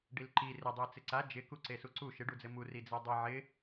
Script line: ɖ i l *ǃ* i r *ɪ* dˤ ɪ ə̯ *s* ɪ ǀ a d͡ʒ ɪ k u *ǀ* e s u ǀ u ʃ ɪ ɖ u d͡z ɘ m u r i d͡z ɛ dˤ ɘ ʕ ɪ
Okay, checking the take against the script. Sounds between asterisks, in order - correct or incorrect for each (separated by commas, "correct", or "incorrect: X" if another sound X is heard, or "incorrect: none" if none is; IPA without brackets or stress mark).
correct, correct, incorrect: t͡s, correct